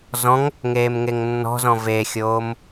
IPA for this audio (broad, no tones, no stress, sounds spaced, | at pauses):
z ɔ̃ ŋ | ŋ eː m ŋ e ŋ nː ɔ̤ z ɔ̃ v e xʲ oː m